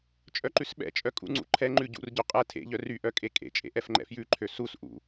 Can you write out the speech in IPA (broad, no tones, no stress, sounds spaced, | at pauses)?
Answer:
t͡ʃʼ œ ǃ ʉ s ɓ ɛ̰ t͡ʃʼ œ kʼ ṵ ŋ͡ǀ ṵ ǃʰ ɛ ŋ͡ǃ ʉ ɟ ṵ r ɟ ɵ qʼ ɛ tʰ ḛ ʎ œ r y ʔ œ kʼ e kʼ ḛ t͡ʃʼ ḛ ʔ ɛ f ŋ͡ǃ ɛ̰ f j ʉ ǃʰ ø s u s ʔ ṵ